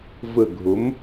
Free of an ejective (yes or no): yes